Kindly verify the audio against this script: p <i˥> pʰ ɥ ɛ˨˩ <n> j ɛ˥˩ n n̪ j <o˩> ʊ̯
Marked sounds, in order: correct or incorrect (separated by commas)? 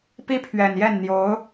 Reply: correct, correct, incorrect